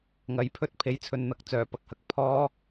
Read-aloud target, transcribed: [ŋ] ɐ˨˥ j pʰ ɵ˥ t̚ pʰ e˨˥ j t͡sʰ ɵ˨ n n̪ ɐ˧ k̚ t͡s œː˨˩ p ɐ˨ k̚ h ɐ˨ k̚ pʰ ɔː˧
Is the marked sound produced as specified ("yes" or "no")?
yes